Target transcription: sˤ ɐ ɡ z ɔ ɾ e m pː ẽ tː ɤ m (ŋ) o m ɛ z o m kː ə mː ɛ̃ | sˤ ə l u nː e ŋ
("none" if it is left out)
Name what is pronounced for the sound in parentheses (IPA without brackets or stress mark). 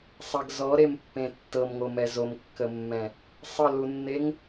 ŋ